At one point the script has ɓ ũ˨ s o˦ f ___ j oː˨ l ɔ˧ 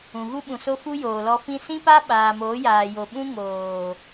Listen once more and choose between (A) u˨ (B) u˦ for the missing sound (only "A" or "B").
B